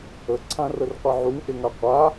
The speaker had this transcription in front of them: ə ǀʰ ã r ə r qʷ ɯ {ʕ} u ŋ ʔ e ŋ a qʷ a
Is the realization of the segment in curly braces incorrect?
no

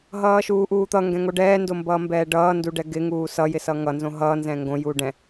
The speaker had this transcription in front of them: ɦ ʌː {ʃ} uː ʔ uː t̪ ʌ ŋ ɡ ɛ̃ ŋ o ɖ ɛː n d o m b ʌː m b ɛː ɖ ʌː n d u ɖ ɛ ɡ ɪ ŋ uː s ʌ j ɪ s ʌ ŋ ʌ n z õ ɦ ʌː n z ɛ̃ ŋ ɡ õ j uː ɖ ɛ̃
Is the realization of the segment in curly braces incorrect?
no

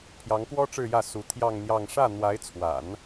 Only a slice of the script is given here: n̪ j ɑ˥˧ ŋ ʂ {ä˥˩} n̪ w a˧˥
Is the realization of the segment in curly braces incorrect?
no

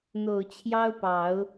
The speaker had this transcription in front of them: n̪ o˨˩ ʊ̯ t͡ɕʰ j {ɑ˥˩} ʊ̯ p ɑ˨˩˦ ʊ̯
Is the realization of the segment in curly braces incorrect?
yes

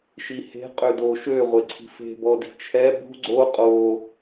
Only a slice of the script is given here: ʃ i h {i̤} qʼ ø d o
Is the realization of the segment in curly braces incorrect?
yes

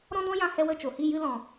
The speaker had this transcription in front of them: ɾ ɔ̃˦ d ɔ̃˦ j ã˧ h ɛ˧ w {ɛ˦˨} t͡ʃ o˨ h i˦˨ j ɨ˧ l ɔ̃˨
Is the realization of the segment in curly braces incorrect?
yes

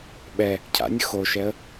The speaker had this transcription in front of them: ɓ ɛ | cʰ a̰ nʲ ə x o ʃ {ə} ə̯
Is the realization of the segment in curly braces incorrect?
yes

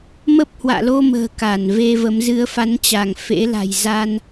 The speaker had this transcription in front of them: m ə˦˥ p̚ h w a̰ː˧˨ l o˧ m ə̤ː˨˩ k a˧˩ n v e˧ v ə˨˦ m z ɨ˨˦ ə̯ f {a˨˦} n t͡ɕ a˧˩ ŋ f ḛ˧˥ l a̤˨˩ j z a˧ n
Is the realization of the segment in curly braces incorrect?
no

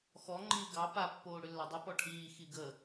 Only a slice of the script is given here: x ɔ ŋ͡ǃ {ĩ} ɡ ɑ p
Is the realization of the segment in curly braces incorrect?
yes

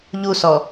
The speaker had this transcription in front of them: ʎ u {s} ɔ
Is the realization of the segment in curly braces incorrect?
no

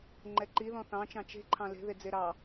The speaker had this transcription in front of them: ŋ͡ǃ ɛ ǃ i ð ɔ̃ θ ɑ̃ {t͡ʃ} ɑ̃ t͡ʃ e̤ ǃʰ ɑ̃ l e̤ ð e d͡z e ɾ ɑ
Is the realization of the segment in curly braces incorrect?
no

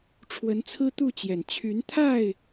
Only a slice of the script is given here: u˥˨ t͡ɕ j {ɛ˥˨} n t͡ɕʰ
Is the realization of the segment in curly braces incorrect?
yes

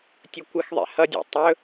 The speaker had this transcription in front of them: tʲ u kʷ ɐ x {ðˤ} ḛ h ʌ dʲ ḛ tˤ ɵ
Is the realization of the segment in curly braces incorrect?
no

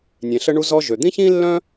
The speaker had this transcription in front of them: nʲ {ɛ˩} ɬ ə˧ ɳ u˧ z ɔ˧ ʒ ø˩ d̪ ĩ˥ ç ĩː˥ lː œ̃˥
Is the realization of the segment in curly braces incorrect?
yes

